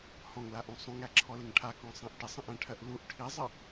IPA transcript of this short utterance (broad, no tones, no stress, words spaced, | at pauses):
hɔ̃ŋlaʔũ sˤũŋæǁʰɔlɪŋ ʈʰakɔ̃sˤãʔ ʈɪsˤə̃ʔæ̃ʈʰɜʔ luʔ ʈʰizˤə